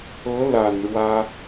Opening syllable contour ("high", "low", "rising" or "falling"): rising